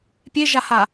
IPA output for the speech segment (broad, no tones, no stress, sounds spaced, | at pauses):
pʲ e ʒ a h a